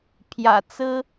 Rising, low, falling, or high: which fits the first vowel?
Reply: low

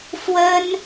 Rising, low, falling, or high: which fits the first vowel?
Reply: high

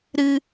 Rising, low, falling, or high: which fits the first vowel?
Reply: high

